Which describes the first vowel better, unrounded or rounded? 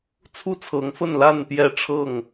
rounded